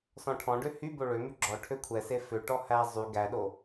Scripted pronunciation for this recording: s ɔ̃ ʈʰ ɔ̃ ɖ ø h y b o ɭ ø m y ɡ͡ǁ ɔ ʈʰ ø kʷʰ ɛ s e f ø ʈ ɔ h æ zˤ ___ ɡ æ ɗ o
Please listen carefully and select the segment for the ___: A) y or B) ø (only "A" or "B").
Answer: A